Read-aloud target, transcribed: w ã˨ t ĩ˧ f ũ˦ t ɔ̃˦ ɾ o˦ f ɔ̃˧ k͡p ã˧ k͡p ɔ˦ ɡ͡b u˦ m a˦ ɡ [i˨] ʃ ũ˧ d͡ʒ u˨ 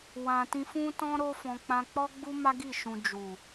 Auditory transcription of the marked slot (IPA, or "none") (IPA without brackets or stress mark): i˦˨